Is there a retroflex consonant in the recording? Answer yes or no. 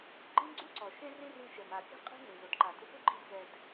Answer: no